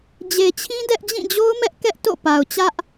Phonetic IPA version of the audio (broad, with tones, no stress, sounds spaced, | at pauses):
d͡ʑ e˨ t͡ɕʰ ĩ˦ d ɛ˦ ʔ d͡ʑ ĩ˦˨ d͡ʑ o˦ ʊ̯ m ɛ˦ ʔ k ɛ˦ ʔ t o̰˦˨ p a˨ ʊ̯ t͡ɕ ä˦ ʔ